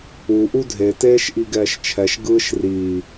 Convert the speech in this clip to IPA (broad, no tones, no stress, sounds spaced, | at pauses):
u ʔ u dʱ e t eː ʃ ʔ i ɡ ɛː ʃ t͡ʃʰ ɛ ʃ ɡ ɯː ʃ r iː